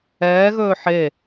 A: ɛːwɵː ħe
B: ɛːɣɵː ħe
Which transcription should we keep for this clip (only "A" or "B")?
B